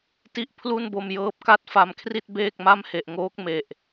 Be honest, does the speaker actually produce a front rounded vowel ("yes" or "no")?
no